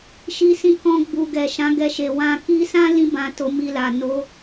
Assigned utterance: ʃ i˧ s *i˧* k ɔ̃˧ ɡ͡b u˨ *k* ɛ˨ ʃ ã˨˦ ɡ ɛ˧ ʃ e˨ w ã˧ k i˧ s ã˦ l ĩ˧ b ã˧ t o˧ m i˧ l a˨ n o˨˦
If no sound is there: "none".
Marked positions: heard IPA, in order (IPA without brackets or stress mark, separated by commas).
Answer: ĩ˧, ɡ